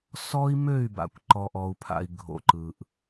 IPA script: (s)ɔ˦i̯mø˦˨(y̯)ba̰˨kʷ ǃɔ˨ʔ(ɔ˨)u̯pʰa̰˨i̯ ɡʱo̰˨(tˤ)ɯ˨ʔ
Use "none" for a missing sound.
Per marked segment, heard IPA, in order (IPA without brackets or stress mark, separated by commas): s, y̯, ɔ˨, ǃ